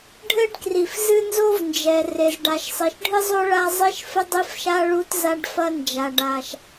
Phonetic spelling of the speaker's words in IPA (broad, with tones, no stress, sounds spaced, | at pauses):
ɖʱ ɘ˥ ɖ k r i˩ f z ɨ˥ n z o˥ v n d͡ʒ ɛ˩ r e˩ z ɖ a˩ ʃ sˤ i˩ ʃ ɖʱ ɨ˥ zˤ o˥ ɭ a˥ zˤ i˥ ʃ f ɘ˥ dˤ i˥ f ʃ a˥ ɭ u˥ t z a˥ ɖ f ɐ˥ n d͡ʒ a˩ ɖ a˩ ʃ